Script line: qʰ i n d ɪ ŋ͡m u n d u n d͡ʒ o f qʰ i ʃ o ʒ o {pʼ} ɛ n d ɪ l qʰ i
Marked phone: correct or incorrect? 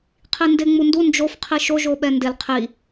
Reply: incorrect